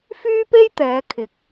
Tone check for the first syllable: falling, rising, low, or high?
high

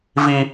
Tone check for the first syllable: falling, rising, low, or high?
high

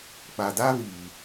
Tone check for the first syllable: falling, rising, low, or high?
low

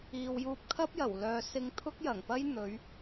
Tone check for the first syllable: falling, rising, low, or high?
low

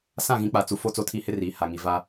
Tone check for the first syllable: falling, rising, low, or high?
falling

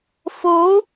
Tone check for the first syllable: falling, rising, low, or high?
rising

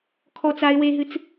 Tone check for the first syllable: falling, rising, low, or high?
high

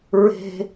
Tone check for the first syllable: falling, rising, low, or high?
high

